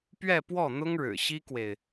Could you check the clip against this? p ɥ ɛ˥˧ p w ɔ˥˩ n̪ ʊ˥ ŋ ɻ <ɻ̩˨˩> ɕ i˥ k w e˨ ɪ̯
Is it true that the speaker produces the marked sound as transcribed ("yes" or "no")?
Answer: yes